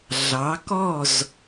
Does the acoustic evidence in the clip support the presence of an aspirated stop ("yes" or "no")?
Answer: no